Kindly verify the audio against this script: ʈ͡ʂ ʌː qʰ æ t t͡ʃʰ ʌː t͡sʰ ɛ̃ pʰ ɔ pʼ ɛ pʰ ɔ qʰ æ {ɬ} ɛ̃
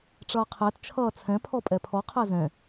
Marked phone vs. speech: incorrect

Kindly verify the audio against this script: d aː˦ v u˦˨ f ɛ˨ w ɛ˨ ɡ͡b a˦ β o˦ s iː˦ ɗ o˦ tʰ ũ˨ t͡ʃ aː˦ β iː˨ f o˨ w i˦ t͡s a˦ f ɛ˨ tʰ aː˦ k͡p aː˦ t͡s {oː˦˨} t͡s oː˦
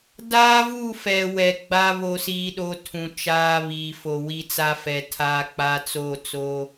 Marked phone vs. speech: correct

